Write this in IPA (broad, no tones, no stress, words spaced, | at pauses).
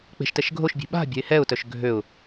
k͡pe̤ʃtɛʃ ɡʱoʃbʲe̤ ɓa̤bʲa̤ɪ̯ hɛʊ̯tœʃ ɡʱøʊ̯